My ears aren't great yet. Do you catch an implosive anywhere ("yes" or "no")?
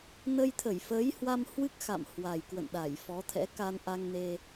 yes